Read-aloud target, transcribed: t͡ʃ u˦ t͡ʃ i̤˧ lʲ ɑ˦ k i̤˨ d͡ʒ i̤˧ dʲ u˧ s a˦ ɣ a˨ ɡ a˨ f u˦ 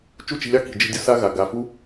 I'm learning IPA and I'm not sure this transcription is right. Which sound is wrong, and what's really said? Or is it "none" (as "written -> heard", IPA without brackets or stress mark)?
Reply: none